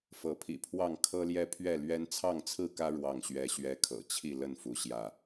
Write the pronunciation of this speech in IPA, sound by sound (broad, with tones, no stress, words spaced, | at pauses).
fɤ˨˦pʰḭ˨˩pʰwɑ˥˨ŋ kʰɤ˦ljɛ˦pʰɥɛ˥˨lɥɛ˦n t͡sʰɑ˥˨ŋt͡sʰɹ̩˥˨kä˦ ɻwɑ˥˨ŋɕɥɛ˦ɕɥɛ˦ kʰɤ̰˨˩t͡ɕʰi˥˨lə˥˨nfu˨˦ ɕjä˥˨